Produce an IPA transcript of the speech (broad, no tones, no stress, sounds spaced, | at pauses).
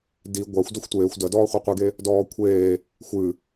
d i ɡʷ a xʷ d ɔ xʷ tʷ eː xʷ d ɐ d ɔː χʷ a qʷ i ɡ e | d ɔː kʷʰ eː | xʷ ɨ